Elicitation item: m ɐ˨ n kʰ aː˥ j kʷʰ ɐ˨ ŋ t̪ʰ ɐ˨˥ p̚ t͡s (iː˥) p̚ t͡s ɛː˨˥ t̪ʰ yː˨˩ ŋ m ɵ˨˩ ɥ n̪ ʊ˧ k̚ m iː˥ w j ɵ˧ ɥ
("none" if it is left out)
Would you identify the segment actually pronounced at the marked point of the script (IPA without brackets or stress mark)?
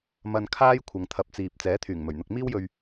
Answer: iː˨